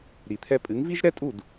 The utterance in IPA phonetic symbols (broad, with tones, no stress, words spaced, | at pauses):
ɾi˩t̪ʰɛ˧ pʼɨ˩˥ŋvi˥ʒɾɛ˥tʼu˥˩d